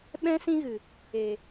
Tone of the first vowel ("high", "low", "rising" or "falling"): high